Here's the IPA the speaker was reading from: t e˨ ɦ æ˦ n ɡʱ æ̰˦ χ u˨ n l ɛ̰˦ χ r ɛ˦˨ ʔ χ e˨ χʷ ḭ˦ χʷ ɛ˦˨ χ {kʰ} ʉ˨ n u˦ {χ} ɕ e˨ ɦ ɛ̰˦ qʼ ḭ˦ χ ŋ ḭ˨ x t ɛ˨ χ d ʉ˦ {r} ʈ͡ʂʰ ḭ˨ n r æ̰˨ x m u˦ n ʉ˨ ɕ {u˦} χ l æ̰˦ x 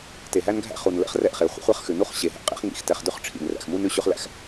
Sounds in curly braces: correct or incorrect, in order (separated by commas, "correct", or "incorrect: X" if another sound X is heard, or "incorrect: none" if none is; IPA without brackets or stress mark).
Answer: incorrect: x, correct, incorrect: χ, incorrect: ʉ˦